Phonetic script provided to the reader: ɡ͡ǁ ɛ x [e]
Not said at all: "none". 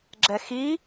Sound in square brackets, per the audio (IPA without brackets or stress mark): i